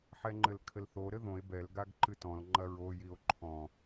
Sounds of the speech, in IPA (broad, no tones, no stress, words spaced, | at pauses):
ħɛŋ͡ǃɘlkʰɘlθo ɾɘðõe̯ bɛl ɡaɡǃɨtɔ̃l ŋ͡ǃɐɹo jio̯ǃʰɔ̃